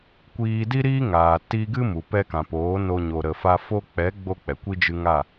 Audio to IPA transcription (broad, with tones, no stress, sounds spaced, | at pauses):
kʷ iː˧ d i˦ ɾ iː˦ ŋ aː˨ t i˧ ɡ ɨ˦ m u˨ p ɛ˧ k ã˨ p oː˨˦ n o˦ ɲ o˧ ɾ ə˧ f a˧ f o˧ k͡p ɛ˨˦ ɡ͡b o˦ k͡p ɛ˨ kʷ i˦ d͡ʒ ɨ˧ ŋ a˦˨